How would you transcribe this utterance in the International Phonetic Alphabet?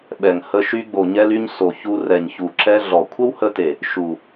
ɓɛ˨ŋ hə˧ ʃy˧ɡ͡bo˨ɲɛ˧ly˧ɲ so˨ çu˧ rɛ˨ɲçu˨ǁɛ˧ ɮɔ˨ kʷʰə˦whə˧te˨ | ʃu˨

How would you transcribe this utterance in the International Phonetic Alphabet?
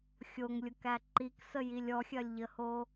xʲoŋlʲʊkæ ǃiksəjilʲ ɔxʲɐlʲʎəho

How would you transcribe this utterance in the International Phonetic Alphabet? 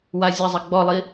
wazʲɐzˤɐ ɡ͡bɔlˠi

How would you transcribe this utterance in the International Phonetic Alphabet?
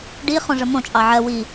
ɖiχõ ʐəmõt͡ʃʼɑ ʕɜ wi

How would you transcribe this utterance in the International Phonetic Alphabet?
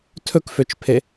tʰɵkføt͡ʃpʰe

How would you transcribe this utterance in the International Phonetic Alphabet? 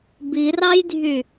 birɑjdʱy

